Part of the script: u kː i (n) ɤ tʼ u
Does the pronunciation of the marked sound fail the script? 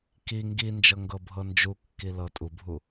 yes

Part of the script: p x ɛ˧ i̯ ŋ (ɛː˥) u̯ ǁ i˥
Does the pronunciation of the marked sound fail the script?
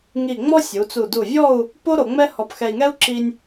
yes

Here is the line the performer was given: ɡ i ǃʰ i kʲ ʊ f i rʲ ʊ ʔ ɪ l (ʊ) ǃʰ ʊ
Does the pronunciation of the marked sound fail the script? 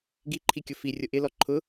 yes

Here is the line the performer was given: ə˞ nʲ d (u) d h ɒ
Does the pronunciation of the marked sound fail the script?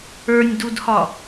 no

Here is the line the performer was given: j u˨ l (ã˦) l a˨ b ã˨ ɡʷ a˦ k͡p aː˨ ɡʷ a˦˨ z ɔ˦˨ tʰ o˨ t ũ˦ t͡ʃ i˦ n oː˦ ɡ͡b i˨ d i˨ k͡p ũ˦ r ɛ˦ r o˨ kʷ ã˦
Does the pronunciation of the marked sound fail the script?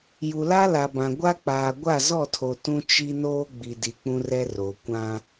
yes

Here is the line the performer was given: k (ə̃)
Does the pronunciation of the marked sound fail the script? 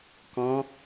yes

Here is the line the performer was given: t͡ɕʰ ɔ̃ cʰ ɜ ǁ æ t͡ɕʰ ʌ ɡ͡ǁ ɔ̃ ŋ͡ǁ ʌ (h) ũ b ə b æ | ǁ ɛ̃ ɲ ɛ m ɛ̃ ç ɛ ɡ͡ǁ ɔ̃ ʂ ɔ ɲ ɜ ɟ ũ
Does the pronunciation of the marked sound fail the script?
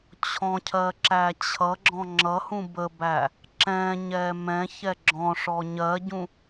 no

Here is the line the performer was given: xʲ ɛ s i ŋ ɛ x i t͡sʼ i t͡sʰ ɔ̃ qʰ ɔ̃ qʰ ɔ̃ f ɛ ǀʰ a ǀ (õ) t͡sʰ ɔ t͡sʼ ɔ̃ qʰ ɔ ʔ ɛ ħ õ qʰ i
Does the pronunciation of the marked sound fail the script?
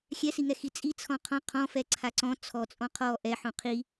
yes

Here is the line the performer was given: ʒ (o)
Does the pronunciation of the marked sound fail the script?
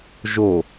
no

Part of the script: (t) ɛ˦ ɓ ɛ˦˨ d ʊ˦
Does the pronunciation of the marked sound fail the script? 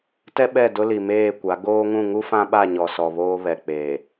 no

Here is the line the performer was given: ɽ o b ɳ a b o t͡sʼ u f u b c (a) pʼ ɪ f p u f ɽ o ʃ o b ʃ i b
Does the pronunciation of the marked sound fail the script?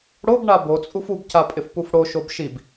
no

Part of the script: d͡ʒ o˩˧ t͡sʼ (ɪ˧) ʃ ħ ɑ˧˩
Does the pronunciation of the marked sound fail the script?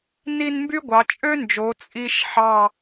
yes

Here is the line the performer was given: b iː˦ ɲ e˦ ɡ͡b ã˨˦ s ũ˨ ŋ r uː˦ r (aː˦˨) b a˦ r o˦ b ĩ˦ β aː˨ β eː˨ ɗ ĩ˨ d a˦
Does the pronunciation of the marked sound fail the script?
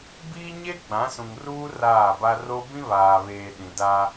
no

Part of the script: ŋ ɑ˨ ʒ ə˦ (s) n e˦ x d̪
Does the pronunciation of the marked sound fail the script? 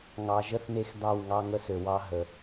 yes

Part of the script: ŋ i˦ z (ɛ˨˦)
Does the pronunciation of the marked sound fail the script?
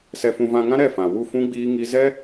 yes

